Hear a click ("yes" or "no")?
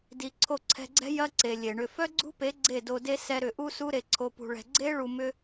yes